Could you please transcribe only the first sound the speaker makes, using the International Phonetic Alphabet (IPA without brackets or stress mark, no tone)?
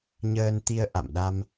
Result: ɲ